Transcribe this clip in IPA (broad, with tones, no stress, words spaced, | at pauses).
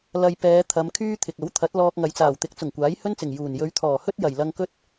lɐ˧j pɛː˨˧t̪ʰɐ˨˧m kʰyː˥t̪ʰɪ˨k̚ ɐ˨˥wt̪ʰɐ˨˥t̚ lɔː˧k̚ŋɐ˨jt͡saː˨˩wt̪ɪ˨˥k̚ t͡sʊ˨˩ŋkʷaː˨˥jhɵ˥nt͡sɪ˨˩ŋ juː˨˩n jɵ˨˧ɥt̪ʰɔː˨˩hɵ˥t̚ jɐ˨˩jlɐ˧ŋkɵ˥t̚